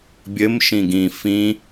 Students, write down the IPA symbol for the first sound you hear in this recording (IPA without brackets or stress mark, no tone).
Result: bʲ